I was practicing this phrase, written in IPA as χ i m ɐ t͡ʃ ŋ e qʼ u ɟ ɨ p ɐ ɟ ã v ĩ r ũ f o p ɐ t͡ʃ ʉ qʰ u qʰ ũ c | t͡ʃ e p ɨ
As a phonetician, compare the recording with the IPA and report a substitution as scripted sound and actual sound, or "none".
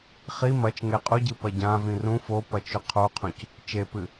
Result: none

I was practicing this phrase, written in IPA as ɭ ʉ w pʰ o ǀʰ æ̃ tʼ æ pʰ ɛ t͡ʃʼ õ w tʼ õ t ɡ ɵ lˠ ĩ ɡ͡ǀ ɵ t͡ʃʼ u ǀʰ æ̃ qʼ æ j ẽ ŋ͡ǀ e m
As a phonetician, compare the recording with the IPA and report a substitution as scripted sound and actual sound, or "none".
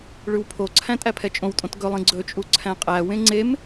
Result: j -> w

